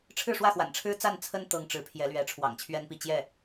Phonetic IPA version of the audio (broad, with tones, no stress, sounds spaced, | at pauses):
ʈ͡ʂʰ ɻ̩˥˧ ʂ w ä˥˩ x w a̰˨˩ n ʈ͡ʂʰ ɻ̩˥ t͡s a˥˩ n t͡sʰ ə˥ n t̪ ɤ˧˥ ŋ ʈ͡ʂ ɻ̩˧˥ pʰ j ɛ˧˥ l ɥ ɛ˧˥ ʈ͡ʂʰ w ɑ̰˨˩ ŋ t͡ɕʰ ɥ ɛ˥ n p i˥˧ t͡ɕ j ɛ˥˩